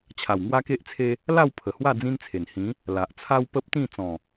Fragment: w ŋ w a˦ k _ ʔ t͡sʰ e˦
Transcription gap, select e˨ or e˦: e˦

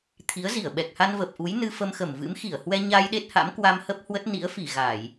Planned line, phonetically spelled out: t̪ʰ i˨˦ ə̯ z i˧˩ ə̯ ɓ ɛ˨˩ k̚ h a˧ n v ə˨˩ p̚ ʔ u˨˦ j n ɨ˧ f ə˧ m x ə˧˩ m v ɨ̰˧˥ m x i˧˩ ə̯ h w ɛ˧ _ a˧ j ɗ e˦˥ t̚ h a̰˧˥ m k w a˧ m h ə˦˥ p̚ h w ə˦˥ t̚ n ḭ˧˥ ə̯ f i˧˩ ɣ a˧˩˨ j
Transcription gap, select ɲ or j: ɲ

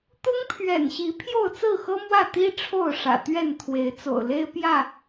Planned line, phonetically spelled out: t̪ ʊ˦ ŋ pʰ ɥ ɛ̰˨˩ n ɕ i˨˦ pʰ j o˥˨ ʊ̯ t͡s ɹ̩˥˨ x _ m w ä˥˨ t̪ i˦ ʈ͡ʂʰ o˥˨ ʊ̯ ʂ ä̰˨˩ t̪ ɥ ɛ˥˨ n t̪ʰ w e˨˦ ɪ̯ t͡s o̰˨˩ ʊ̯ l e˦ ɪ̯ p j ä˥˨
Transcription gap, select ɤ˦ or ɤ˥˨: ɤ˦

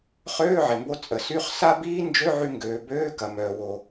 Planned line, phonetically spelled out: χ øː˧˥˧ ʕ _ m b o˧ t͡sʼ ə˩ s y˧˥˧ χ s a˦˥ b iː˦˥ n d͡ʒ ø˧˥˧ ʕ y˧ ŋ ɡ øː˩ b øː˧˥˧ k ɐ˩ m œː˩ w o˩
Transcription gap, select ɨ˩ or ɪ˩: ɪ˩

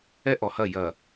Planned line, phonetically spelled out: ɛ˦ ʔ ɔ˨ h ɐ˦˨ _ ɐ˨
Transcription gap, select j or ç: j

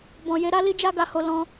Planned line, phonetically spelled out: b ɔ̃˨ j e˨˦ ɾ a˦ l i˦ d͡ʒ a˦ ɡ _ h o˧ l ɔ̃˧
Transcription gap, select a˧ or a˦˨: a˧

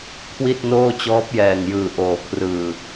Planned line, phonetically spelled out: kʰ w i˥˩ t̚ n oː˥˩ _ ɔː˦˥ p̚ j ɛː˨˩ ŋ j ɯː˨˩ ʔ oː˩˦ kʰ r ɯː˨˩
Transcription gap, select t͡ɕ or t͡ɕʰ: t͡ɕ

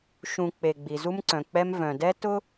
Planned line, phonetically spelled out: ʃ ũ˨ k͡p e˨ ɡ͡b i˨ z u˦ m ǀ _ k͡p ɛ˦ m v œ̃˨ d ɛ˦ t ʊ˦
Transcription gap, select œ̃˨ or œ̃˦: œ̃˨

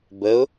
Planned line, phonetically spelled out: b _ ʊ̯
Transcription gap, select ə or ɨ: ə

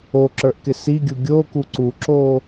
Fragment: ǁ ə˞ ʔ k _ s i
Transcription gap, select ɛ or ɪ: ɪ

